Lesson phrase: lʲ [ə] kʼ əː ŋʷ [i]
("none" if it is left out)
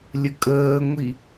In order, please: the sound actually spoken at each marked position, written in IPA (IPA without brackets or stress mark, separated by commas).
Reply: ə, i